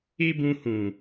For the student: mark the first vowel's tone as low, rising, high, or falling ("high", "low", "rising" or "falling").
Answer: high